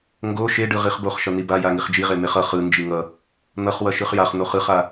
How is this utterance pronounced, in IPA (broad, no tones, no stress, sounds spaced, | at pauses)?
ŋ ɡ o ʃ e ɖ ɯ ʁ i χ b o χ ʃ ʌ n̪ i b a j a ŋ i χ d͡ʒ i ʁ e m e χ ʌ χ ɯ n d͡ʒ i ŋ ʌ | n̪ ʌ χ w ʌ ʃ ɯ χ j a χ n̪ o χ ɯ χ a